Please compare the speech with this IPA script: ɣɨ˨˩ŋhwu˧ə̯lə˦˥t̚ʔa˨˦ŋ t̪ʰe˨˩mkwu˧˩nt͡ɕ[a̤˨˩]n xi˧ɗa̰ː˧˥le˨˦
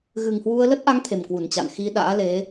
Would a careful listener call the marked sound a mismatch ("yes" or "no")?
yes